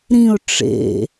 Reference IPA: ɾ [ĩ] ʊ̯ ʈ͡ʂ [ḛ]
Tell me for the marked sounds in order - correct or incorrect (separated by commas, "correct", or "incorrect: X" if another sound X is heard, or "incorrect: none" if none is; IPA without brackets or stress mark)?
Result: correct, correct